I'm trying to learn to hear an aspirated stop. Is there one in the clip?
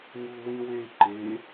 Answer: no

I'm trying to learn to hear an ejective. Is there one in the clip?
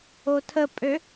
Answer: yes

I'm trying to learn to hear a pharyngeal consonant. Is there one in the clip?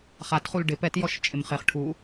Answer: no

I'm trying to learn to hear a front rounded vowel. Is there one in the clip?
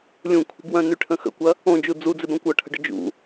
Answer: yes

